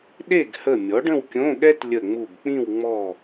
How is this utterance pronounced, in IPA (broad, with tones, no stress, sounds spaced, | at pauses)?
ɗ e˥˨ ɡ h ə˧˩ mʲ ɔ˩˥ ɖ ə̃˥˨ w kʲ õ˧˥˧ ɠ ɛ˥ t lʲ ə˧˩ ŋ͡m u˧˩ b k͡p ĩ˥˨ w ŋ͡m ɔ˧˩